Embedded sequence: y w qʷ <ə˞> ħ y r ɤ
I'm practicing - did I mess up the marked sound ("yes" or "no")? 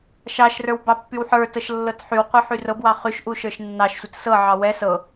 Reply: yes